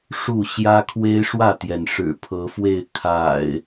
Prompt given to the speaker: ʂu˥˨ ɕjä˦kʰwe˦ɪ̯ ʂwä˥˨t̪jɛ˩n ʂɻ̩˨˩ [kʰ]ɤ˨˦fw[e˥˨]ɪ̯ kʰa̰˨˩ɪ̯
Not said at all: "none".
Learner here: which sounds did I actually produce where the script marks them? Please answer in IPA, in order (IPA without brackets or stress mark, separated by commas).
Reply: pʰ, e˥˨